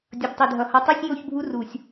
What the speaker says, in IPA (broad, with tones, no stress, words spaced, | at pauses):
dʲʌ˨btˤe˨dʱʌ˨ hʌ˨tˤɯ˦sʲjo˦˨çbʱu˦ ru˨sʲ